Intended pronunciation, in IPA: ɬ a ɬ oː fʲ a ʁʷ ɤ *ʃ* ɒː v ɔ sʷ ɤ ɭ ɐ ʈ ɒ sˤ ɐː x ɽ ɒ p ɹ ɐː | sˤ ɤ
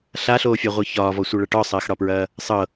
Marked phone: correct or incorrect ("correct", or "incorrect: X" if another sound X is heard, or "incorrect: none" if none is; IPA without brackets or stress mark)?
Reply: incorrect: ç